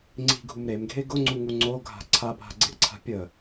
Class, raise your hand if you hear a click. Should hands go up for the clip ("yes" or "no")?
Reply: yes